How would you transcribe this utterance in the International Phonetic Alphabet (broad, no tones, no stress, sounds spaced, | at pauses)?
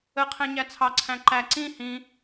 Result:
ə qʰ ɛ̃ ɲ æ t͡sʰ ɑ ǀʰ æ̃ ǃ æ ǀ ĩ h ĩ